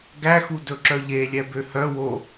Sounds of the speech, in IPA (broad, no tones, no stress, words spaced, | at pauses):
ɡæxudɵǁœ ʎelʲɛ bøhœwo